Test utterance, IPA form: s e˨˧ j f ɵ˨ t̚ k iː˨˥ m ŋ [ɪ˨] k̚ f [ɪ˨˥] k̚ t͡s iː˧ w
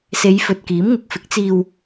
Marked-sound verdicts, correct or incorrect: correct, correct

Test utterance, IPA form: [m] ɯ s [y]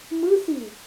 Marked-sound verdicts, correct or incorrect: correct, incorrect

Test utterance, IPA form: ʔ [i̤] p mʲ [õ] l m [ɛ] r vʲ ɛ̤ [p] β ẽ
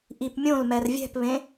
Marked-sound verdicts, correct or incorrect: incorrect, correct, correct, correct

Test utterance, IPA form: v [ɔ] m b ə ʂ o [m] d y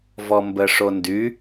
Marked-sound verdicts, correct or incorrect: correct, incorrect

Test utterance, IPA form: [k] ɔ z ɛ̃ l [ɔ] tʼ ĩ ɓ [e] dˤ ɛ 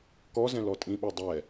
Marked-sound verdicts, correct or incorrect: correct, correct, correct

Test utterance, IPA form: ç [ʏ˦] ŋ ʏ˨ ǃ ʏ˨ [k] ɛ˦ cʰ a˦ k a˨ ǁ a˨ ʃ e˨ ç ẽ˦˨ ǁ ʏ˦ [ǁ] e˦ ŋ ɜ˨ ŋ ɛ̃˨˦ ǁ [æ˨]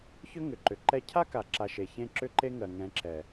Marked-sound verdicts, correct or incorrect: correct, incorrect, incorrect, incorrect

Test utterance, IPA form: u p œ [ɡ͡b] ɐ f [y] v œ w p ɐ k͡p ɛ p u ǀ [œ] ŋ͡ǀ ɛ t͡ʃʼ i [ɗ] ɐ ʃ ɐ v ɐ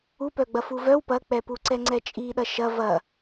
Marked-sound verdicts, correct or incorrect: correct, incorrect, incorrect, correct

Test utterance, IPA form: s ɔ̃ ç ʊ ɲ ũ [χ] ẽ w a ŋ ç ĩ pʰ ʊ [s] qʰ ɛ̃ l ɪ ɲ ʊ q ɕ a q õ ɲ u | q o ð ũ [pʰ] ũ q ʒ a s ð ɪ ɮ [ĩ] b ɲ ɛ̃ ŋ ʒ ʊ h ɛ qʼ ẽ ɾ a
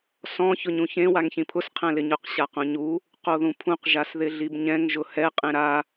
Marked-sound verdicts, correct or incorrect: incorrect, correct, correct, incorrect

